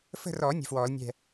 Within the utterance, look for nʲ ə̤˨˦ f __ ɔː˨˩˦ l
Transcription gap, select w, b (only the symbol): w